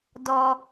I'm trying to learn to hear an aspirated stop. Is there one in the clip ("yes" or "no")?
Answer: no